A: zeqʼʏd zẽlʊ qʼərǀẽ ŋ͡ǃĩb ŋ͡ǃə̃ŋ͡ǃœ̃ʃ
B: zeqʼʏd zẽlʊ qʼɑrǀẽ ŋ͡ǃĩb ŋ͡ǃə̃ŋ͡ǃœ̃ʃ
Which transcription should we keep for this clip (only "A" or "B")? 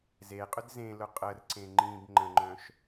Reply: A